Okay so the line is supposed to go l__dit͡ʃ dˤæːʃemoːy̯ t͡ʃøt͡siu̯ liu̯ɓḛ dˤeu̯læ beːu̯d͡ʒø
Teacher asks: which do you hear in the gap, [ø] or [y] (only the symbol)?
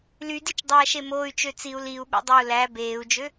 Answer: y